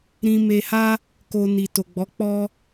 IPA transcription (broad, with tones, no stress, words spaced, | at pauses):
ɾĩ˧me˧ha˦ | ko˧ni˨ to˨ɡ͡bɔ˨˦ k͡pɔ˧